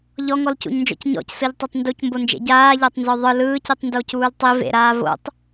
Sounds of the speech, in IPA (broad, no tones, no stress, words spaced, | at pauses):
ʎɔŋɔlcṵɲnd͡ʒɔ̰c ɲɔ̰csɯʎtˤotˤ nducmbond͡ʒḛ ɟaːʎatˤnzɔ ðˤɯ lɯːcitˤndocuːl tˤi vḛɾaː vo̰tˤ